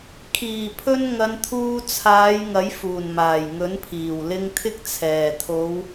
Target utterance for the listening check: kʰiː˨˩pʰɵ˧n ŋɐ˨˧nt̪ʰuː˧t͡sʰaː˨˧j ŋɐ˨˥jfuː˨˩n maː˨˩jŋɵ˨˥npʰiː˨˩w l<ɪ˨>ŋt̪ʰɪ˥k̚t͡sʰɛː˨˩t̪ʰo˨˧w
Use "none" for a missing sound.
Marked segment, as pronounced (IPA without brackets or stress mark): ɪ˧